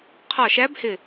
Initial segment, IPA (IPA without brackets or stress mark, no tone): qʰ